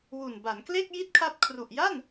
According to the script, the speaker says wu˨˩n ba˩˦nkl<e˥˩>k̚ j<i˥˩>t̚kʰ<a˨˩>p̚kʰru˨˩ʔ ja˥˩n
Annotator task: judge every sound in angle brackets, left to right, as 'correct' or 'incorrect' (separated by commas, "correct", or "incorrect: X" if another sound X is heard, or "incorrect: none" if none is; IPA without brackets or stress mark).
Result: correct, correct, incorrect: a˦˥